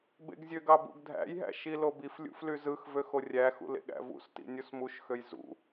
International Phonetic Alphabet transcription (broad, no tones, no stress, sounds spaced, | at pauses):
b ḛ ɡ zʲ ø ɡ ɑ b ṵ ɡ dʱ æ̰ j ɦ æ̰ ʃ i l o b i f lʲ ṵ f l y z ɯ x v ø x o rʲ æ x ṵ l ḛ ɠ æ̰ v ṵ s t ḭ nʲ u s m u ʃ x ø j z ṵ